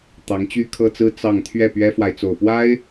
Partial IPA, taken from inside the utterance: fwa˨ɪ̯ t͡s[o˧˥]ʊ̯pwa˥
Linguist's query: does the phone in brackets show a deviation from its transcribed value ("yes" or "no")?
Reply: yes